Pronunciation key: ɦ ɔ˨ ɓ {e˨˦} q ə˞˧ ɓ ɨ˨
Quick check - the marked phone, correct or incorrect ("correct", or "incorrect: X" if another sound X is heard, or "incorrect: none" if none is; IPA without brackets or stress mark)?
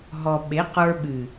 correct